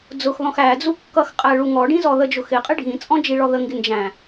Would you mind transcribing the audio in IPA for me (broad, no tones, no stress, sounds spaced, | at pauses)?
d͡z ʊ x ð ɔ̃ x æ d͡z u kː ʌ x qʼ æ ɭ u ŋ ɔ ɖ ĩ z ɔ ð ə d͡ʒ ʊ x ɪ qʼ ɪ ɖʱ ĩ t͡sʼ ɔ̃ d͡ʒ i ɭ ɔ ð ə ŋ ɡ ɪ n d͡ʒ æ̃